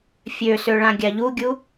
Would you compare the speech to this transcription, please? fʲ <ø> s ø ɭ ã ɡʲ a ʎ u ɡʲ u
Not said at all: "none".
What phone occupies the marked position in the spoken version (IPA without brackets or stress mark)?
ø